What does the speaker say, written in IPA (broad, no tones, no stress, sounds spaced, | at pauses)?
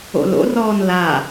o̰ l o̰ r ɔː n l a